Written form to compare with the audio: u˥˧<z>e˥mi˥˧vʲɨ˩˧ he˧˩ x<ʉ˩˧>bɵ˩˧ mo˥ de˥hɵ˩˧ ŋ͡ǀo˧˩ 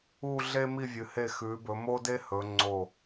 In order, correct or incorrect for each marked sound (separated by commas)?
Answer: incorrect, correct